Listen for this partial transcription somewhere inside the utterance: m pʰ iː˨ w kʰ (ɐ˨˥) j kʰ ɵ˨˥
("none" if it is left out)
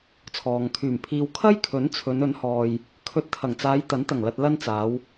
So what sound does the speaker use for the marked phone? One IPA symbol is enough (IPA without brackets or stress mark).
ɐ˥